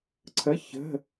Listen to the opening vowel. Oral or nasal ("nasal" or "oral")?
oral